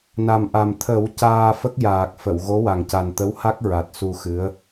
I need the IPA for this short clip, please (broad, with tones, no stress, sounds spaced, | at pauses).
n a˨˩ m ʔ a˨˩ m t̪ʰ ə˨˩˦ w c aː˧ f ə˦˥ k̚ j aː˨˩ k̚ f ə˨˩˨ w ɣ o˧˥ w a˨˩ ŋ c a˨˩ n t̪ ə˧˥ w h a˦˥ k̚ ɹ a˨˩ t̚ s u˧ x ɨ˧˥ ə̯